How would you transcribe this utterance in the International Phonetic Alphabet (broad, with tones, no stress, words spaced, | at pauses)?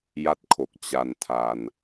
ja˥˩t̚kʰo˨˩k̚ t͡ɕa˧ntʰa˧n